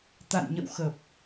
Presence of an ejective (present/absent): absent